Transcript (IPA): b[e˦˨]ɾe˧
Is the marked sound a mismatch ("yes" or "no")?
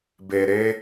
yes